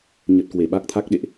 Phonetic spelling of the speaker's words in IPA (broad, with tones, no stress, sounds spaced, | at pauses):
ɲ ə˨˩ t̚ k w e˧˩ ɓ a˦˥ k̚ t̪ʰ a˦˥ k̚ ɗ ḛ˧˨ ʔ